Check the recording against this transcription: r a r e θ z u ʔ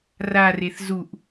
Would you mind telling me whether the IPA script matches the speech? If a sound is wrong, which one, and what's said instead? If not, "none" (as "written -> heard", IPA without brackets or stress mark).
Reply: none